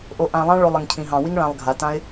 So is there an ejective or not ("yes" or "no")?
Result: no